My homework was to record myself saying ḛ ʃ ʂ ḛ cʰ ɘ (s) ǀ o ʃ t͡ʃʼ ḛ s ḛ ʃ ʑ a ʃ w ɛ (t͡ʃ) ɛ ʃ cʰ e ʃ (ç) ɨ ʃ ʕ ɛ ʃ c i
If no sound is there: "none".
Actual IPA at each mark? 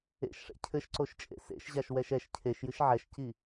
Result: ʃ, ʃ, j

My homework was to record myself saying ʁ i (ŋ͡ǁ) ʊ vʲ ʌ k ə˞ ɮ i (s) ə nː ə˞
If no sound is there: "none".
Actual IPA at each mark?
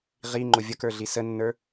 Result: ŋ͡ǃ, s

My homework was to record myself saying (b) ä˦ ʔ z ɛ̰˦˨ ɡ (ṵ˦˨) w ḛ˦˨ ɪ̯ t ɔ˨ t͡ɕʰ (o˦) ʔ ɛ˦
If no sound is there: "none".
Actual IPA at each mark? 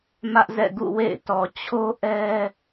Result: m, ṵ˦˨, o˦

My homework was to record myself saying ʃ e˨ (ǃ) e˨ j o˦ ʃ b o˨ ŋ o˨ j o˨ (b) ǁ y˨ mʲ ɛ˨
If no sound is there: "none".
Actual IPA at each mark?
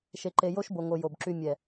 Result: ǃ, b

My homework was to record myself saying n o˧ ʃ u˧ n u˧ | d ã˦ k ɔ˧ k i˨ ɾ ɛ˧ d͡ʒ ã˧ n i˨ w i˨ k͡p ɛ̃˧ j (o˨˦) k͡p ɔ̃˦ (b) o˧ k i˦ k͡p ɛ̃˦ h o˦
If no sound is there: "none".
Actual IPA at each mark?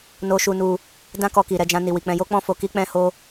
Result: o˦, f

